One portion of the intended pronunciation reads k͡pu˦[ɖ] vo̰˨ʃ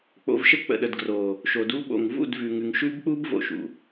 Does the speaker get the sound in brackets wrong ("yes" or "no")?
yes